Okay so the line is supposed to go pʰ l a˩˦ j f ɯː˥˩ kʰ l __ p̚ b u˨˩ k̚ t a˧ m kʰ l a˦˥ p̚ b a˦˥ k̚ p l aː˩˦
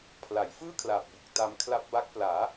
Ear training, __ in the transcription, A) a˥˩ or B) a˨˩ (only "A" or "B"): B